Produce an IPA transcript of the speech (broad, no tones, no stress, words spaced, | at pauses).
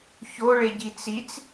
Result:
çoɭeɟi t͡sit͡s